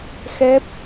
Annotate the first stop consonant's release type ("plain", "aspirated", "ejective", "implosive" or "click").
plain